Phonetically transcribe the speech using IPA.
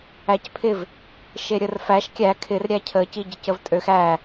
æ c pʰ ɪ v | ʃ e ɾʲ ə r f æ ʃ kʲ æ kʰ ɪ r ɾʲ æ cʰ ə c i ɟ ɪ c ə v tʼ ø x æ

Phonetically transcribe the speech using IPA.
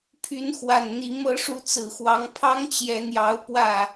pʰ y˨˦ n x w a˨˩ n n̪ i˨˦ m ɤ˨˦ ʂ u˨˦ t͡s ɹ̩˨˩ x w ɑ˨˦ ŋ pʰ ɑ˦ ŋ t͡ɕ j ɛ˨˦ n̪ j ɑ˨˦ ʊ̯ p w ä˥˨

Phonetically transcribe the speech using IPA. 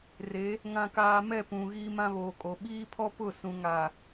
r e˨˦ | ŋ ã˦ k aː˦ m ɛ˦˨ p ũ˨ ɣ iː˦ m ã˦ β oː˨ kʼ o˨ ɓ iː˦ pʰ ɔ˦ p ʊ˦˨ s ũ˨ ŋ a˨

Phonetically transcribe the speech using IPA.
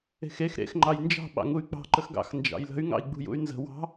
e̤ x e x ɾ ḛ x ŋ͡ǃ ɑ j n d͡ʒ ɑ̤ ɓ ɑ̰ ŋ u y̯ k͡p ɑ̤ ǃ ə x ɡ ɑ̰ x n d͡ʒ ɑ̰ j l ə̤ y̯ ŋ ɑ̰ i̯ ɡ͡b ṳ j ṵ y̯ n z ə̤ w ɑ̤

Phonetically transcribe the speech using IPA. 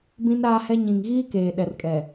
b ĩ˦ n ɾ aː˦ h ɛ˦ ɲ ĩ˨ ŋ ɣ iː˦ k eː˨ ɗ ɛ˨ r kʼ ɛ˨

